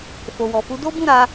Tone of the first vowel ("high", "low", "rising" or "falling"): low